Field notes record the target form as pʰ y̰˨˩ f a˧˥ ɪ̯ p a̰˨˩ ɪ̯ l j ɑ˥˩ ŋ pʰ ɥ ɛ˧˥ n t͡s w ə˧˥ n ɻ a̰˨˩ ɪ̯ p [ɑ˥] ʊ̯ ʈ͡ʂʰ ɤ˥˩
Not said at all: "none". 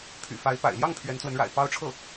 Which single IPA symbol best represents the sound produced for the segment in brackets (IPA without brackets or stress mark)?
ɑ˥